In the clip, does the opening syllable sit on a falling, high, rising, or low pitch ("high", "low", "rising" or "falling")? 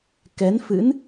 rising